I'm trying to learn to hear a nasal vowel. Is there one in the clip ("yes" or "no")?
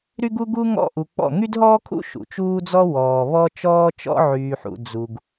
no